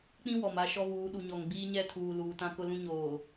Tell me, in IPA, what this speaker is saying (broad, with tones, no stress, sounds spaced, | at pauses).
k͡p ĩ˦ w ɔ˨ m a˦ ʃ ɔ˦ v uː˨˦ ɗ u˨ ɲ ɔ˨ ŋ ɡ͡b iː˦ ɲ ɛ˦˨ tʰ uː˨ l uː˨ t ã˦ k ʊ˦ l ũ˦ ɲ oː˨